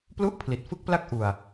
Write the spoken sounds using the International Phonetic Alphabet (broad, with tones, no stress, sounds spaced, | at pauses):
p l u˥˩ ʔ pʰ l i˨˩ t̚ f ɯ˥˩ k̚ p l a˥˩ k̚ ʔ u˧ a̯